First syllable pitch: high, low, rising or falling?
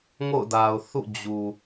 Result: falling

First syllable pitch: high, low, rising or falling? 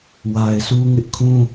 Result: low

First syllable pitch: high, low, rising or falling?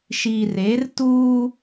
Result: low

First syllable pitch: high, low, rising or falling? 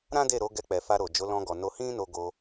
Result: high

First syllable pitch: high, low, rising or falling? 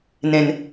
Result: low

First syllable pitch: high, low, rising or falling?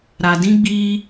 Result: low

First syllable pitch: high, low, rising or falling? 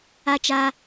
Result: high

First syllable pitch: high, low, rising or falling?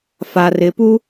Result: low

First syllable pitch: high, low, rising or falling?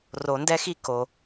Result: low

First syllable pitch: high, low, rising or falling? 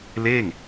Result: falling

